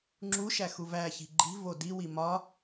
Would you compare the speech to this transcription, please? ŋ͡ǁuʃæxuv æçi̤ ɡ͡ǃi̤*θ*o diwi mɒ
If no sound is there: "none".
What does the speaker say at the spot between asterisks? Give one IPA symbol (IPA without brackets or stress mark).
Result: v